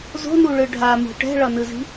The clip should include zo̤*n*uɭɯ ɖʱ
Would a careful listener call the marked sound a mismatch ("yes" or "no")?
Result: no